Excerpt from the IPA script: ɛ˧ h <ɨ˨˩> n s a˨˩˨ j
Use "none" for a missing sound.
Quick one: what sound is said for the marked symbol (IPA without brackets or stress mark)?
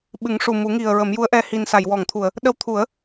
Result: i˨˩